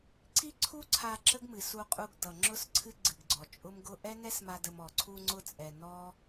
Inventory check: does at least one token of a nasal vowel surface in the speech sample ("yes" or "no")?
no